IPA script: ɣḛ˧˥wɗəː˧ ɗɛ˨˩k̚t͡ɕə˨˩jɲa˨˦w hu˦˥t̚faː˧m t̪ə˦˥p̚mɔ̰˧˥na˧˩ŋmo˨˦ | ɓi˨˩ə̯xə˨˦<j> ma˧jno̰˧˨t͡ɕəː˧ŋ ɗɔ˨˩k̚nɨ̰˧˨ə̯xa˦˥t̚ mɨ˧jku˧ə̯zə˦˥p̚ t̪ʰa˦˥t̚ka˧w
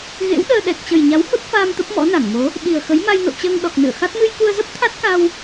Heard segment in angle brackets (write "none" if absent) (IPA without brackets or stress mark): j